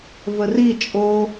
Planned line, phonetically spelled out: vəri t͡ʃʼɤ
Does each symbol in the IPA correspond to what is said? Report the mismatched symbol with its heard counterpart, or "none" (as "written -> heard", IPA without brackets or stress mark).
ɤ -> o